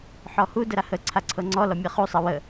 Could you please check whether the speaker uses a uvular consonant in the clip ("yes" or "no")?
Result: yes